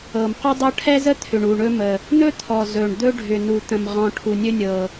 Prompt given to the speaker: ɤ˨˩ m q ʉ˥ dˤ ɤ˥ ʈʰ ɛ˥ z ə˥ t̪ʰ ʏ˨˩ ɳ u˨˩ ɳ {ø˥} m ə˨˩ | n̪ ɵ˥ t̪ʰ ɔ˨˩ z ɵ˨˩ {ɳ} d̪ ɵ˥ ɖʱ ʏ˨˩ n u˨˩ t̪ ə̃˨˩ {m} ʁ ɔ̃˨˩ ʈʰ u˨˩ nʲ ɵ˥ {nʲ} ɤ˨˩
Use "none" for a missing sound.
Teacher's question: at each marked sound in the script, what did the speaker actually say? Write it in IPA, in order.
ɵ˥, ɳ, m, nʲ

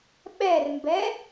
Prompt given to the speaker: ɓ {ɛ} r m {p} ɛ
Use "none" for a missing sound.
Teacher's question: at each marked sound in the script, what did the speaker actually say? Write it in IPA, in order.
ɛ, b

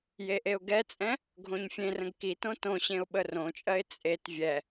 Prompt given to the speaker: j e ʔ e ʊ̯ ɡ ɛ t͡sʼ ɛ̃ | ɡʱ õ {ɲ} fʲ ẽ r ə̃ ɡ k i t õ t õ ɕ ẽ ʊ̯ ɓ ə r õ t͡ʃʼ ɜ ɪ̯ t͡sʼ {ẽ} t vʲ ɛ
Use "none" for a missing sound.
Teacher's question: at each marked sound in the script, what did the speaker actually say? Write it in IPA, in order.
ɲ, e

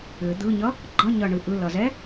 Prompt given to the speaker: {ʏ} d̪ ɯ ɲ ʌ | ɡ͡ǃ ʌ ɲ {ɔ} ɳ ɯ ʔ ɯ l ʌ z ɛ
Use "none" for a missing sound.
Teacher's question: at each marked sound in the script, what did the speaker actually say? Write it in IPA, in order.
ʏ, ʌ

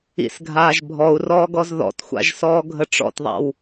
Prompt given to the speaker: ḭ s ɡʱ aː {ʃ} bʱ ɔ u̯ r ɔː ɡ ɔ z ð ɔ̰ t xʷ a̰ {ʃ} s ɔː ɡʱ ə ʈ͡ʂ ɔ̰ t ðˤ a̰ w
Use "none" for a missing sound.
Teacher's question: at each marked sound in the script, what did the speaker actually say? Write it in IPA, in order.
ʒ, ʒ

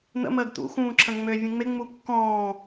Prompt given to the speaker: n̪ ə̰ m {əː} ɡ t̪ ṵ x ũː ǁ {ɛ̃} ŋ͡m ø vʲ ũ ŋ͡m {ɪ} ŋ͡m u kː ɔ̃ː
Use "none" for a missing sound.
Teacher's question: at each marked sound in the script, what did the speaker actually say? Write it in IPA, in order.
əː, ə̃, ɪ

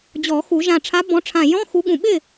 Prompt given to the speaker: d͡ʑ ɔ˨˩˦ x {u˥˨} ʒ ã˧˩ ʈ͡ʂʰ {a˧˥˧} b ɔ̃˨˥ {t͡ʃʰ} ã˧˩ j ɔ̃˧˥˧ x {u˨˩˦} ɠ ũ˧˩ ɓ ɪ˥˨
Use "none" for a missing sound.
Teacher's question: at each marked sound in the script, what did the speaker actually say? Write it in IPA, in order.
u˨˩˦, a˨˥, ʈ͡ʂʰ, u˨˥

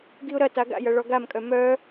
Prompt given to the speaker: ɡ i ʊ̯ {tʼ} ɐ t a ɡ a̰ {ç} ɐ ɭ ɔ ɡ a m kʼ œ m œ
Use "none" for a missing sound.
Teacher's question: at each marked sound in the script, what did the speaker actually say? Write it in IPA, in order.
ɾ, j

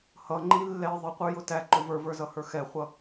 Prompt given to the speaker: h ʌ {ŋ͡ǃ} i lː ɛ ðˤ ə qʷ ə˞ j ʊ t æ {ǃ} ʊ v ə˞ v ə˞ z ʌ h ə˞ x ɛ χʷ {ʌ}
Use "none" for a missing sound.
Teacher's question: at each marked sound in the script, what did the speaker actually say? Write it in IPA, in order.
ŋ͡ǃ, ǃ, ʌ

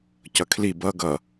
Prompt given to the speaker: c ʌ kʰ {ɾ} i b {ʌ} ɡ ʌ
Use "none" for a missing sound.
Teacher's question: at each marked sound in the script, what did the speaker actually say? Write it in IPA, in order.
l, ʌ

